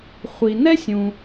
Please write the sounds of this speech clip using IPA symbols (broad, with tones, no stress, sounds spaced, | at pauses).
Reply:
χʷ i˩ n ɛ˥ sʲ ũ˩